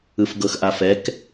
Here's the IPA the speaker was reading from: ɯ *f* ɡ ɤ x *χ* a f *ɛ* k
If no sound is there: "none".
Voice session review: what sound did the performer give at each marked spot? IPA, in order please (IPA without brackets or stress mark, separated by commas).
f, ʔ, ɛ